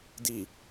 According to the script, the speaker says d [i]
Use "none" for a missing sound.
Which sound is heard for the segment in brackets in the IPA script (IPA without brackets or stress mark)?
i